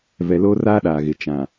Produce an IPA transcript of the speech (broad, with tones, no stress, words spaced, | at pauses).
vɛ˨loː˦raː˦ ɗaː˨ɣɪ˨ t͡ʃã˨